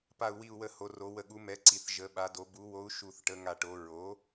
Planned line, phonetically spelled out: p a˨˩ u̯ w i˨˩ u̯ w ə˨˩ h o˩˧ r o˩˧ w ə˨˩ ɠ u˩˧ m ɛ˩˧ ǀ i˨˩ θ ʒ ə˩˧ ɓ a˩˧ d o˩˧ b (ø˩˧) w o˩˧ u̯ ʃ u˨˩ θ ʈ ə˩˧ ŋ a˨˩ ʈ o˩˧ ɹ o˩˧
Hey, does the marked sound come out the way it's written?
no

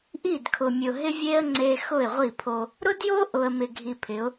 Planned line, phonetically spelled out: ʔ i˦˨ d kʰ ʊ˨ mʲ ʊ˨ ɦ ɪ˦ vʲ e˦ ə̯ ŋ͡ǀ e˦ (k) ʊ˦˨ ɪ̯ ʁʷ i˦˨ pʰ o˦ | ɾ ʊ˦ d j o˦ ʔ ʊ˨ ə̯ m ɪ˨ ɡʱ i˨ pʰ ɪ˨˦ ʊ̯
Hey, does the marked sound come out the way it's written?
no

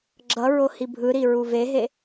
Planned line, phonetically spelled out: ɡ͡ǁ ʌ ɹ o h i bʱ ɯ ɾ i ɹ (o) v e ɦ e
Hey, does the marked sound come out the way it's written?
no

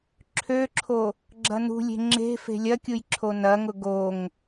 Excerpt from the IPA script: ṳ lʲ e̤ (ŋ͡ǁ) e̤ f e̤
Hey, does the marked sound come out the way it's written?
yes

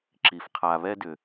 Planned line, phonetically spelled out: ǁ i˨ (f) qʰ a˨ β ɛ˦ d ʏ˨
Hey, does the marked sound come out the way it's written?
yes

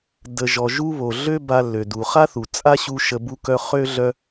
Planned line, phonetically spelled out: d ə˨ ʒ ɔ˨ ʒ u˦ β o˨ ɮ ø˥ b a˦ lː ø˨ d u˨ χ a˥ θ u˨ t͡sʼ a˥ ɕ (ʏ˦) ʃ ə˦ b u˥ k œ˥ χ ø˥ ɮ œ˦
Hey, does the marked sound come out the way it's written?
no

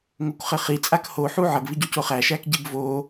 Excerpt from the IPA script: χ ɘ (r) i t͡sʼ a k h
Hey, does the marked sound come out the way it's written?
no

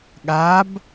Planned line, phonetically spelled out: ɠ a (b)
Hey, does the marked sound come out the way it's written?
yes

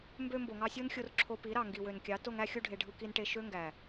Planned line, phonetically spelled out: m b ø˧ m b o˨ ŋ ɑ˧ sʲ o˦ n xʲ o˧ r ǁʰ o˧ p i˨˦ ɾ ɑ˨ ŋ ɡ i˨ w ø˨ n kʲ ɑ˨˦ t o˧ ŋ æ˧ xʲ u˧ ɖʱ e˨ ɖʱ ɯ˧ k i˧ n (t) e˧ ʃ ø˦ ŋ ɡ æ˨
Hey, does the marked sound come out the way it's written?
no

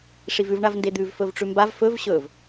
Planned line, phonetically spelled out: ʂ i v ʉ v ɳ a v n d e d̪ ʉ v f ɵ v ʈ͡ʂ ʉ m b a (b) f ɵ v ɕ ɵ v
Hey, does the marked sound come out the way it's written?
no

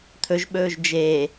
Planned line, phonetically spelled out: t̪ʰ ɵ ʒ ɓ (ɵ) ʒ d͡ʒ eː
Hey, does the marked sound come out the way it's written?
no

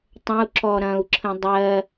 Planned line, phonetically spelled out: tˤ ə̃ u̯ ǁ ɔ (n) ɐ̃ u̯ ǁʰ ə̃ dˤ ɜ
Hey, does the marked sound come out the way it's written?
no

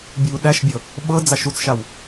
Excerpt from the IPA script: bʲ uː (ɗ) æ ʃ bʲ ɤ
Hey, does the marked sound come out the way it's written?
yes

